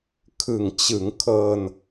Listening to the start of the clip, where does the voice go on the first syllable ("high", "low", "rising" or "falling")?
low